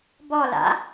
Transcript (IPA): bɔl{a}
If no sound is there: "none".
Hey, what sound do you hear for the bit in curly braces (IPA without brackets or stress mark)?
a̰